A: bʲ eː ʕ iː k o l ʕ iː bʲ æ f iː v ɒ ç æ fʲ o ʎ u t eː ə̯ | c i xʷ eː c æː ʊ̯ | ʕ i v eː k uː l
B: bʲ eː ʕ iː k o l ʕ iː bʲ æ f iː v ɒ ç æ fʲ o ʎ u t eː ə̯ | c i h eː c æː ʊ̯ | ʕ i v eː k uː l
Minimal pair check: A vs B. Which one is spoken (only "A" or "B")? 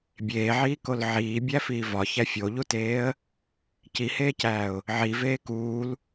B